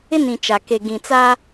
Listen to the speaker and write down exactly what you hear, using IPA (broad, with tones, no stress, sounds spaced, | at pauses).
ɪ˦ n ĩ˨ t͡ʃ a˨ k e˨ ɡ ĩ˨ t͡s a˦